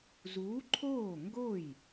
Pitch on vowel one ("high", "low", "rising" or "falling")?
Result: rising